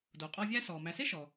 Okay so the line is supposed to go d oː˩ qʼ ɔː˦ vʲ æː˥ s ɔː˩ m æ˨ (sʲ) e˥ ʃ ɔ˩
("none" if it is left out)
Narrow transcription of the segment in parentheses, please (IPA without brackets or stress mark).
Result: s